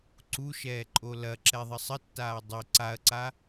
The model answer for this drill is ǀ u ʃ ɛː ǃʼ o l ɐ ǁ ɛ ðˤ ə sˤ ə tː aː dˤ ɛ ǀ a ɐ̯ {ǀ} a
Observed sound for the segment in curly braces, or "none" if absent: ǀ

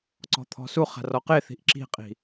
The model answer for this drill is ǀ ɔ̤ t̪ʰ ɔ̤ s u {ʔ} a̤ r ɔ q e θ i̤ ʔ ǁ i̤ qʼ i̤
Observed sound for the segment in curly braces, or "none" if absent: χ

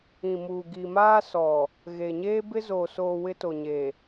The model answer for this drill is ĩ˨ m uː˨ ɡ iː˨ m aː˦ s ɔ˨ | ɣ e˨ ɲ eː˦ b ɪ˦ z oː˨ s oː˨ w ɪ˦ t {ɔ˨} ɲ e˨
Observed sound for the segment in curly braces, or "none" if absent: o˨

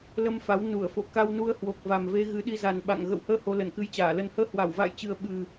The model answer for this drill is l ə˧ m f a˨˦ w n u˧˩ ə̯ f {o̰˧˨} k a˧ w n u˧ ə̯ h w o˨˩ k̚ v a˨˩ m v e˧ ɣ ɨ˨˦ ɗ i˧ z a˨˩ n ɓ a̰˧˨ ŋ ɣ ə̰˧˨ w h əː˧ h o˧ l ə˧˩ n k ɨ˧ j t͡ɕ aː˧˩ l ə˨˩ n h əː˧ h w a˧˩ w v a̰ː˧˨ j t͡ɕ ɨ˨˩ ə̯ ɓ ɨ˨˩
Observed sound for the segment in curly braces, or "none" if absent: o̰˧˨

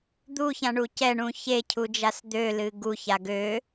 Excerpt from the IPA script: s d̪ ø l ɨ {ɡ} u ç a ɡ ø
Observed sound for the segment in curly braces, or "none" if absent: ɡ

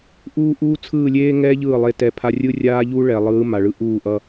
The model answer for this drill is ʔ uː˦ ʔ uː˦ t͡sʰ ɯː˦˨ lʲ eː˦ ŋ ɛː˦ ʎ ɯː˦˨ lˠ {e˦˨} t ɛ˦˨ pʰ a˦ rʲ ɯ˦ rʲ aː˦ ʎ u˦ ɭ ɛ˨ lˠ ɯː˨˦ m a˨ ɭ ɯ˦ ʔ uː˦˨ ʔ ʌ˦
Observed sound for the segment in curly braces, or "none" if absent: e˦˨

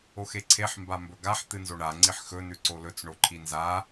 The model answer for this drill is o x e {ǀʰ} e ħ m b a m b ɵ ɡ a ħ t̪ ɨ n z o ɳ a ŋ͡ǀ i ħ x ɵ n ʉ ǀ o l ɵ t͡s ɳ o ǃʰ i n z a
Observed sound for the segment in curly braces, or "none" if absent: ǀʰ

